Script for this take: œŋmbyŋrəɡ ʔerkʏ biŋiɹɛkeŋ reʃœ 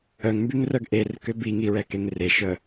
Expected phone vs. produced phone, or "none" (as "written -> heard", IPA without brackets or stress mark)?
ə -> œ